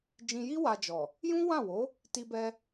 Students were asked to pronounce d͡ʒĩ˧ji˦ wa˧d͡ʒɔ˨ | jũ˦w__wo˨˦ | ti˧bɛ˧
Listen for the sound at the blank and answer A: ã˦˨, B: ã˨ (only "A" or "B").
A